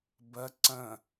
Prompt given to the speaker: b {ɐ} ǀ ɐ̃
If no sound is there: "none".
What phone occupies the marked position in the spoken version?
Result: ɐ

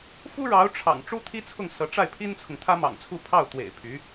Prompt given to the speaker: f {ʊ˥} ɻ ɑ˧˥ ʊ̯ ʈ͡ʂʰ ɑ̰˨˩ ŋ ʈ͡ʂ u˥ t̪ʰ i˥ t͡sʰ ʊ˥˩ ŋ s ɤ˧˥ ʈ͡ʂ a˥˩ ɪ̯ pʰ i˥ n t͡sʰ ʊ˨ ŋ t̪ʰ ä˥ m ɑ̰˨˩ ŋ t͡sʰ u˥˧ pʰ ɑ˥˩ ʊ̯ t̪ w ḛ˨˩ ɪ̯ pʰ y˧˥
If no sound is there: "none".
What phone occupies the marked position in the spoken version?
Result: u˥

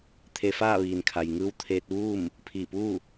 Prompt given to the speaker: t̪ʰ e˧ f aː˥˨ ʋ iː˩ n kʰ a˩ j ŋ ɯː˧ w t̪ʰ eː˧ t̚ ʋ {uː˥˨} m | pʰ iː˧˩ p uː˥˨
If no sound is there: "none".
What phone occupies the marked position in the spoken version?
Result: uː˥˨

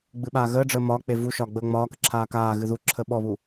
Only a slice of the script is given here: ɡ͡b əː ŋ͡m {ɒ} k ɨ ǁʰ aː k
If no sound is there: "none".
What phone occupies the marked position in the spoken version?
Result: ɒː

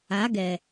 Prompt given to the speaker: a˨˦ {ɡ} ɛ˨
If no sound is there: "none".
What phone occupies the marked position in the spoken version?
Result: ɡ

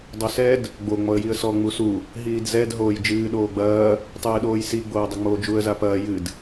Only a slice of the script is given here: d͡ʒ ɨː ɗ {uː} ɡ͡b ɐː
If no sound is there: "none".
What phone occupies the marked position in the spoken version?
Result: oː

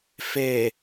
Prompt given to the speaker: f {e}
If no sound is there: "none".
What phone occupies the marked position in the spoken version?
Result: e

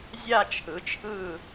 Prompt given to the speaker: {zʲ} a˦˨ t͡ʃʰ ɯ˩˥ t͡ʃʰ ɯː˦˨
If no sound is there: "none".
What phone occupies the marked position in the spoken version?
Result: zʲ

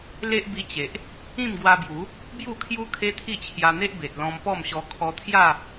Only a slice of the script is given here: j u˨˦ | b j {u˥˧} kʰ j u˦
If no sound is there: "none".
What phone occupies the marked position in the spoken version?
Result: u˥˧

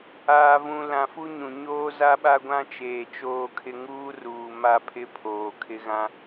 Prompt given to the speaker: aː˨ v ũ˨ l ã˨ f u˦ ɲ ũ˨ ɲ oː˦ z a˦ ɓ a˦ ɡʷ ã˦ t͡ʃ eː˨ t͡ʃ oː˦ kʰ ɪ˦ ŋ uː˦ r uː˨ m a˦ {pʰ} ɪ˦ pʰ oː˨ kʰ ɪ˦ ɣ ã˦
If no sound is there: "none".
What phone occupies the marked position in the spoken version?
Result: pʰ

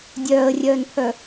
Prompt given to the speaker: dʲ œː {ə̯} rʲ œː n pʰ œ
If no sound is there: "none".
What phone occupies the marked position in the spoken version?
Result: ə̯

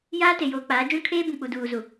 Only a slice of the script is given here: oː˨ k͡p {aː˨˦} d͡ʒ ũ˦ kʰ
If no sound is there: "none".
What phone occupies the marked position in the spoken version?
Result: aː˨˦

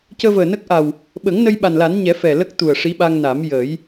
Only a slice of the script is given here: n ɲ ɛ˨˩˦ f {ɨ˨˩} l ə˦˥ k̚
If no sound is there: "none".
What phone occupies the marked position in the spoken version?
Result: ɛ˨˩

